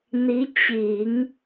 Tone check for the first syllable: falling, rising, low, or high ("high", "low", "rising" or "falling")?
rising